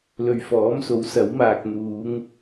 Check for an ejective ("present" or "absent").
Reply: absent